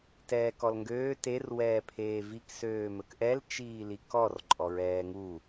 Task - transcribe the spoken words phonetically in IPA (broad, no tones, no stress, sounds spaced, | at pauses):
t ɛː k ɔ l ŋ ɡ øː t e r w ɛː pʰ eː v i k s øː m ɵ k ʔ ɛ l t͡ʃ iː l i k ɔ r ǃʼ ɔ ɹ ɛː ŋ u